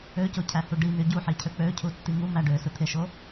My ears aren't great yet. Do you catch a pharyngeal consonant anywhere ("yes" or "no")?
yes